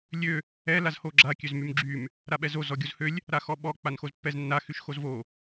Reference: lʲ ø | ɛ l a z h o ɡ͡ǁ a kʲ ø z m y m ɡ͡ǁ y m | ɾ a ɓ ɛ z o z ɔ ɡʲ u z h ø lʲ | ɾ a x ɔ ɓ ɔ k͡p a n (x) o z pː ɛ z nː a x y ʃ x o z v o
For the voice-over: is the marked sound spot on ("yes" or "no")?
yes